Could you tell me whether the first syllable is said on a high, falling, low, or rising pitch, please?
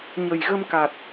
low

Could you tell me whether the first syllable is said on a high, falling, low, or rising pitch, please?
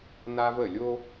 high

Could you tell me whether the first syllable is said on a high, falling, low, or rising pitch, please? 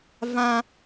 high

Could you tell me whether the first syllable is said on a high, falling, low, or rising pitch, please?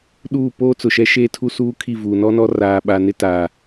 falling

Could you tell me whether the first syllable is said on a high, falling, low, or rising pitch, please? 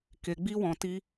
low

